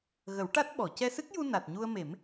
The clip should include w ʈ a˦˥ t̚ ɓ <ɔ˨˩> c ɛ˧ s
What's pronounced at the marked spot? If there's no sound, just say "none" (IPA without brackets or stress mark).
ɔ˨˩˨